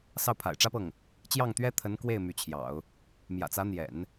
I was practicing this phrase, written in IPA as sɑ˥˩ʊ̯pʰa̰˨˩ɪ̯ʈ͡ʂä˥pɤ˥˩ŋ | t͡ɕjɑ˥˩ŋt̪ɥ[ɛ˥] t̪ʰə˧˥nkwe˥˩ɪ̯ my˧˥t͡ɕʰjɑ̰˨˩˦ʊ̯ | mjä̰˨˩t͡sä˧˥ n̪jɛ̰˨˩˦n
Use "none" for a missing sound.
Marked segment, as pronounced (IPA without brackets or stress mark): ɛ˥